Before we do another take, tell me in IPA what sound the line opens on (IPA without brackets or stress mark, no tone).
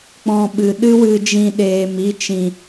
k͡p